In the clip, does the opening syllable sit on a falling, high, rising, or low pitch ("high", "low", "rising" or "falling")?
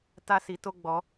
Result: high